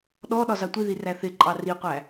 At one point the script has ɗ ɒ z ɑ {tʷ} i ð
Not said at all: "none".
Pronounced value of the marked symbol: tʷ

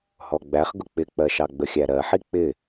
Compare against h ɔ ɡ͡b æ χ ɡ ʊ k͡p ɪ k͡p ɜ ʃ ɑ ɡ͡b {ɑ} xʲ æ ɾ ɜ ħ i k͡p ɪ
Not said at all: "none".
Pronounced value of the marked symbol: ə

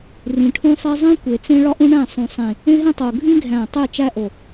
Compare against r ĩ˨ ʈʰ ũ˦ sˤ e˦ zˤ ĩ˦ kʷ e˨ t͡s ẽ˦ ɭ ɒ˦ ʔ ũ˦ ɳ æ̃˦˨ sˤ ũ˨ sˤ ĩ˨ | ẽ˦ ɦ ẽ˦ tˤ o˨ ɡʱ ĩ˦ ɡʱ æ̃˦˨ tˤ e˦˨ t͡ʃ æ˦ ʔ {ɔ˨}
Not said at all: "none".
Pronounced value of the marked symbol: o˨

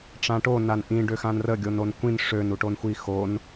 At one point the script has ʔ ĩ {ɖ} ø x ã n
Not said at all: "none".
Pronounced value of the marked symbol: ɖ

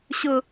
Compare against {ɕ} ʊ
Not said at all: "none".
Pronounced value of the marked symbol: ɕ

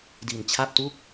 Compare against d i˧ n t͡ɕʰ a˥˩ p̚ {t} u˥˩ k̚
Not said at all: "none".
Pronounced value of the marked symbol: t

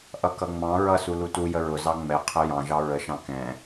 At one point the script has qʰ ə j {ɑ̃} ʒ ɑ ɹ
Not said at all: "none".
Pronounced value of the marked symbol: ɑ̃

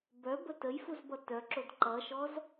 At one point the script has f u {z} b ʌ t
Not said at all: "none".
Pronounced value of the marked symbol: z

